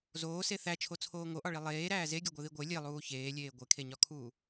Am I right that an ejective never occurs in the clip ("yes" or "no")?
yes